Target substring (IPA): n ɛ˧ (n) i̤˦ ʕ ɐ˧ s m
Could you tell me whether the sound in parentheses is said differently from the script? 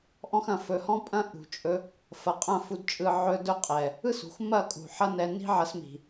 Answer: no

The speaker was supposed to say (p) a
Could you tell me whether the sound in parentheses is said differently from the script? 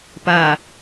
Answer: no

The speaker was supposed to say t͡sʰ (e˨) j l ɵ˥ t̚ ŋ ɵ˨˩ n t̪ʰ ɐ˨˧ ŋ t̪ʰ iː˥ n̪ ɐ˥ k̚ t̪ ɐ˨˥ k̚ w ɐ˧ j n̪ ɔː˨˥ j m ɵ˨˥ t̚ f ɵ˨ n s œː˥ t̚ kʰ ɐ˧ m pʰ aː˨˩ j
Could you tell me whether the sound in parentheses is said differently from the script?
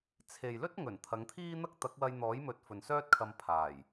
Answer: no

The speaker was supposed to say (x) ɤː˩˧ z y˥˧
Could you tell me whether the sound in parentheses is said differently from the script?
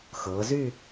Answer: no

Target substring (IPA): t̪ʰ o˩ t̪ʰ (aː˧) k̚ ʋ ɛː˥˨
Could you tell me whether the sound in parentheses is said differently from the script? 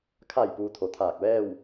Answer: yes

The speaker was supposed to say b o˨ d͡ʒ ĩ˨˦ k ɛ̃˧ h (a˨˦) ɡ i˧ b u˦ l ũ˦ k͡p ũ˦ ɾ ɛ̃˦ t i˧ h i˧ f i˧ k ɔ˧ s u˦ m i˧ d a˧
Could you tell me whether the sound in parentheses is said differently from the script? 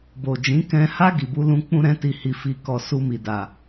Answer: yes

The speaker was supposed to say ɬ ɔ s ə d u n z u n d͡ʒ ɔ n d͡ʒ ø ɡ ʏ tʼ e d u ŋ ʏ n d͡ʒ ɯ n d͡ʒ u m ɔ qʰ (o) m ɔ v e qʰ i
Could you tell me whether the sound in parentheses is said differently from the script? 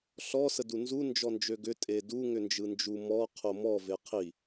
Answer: no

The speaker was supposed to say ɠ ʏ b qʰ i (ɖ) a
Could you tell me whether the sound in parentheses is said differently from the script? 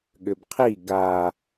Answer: yes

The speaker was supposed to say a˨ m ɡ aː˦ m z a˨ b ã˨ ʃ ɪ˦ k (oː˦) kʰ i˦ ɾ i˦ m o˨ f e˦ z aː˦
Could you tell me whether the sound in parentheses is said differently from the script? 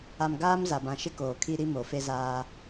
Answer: yes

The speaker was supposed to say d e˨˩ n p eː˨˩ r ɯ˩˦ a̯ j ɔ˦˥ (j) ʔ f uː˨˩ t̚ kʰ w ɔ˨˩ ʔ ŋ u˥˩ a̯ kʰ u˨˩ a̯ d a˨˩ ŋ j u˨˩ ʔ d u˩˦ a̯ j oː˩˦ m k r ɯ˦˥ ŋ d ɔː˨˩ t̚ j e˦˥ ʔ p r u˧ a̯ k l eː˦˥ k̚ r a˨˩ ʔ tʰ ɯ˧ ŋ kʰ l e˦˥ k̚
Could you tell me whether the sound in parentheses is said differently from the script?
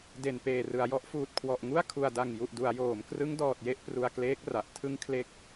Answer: yes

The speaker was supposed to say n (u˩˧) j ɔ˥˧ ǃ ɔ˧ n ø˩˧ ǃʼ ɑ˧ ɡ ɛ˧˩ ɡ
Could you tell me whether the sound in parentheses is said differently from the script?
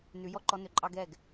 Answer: yes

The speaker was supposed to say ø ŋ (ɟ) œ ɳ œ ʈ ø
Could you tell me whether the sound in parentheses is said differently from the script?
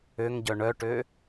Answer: no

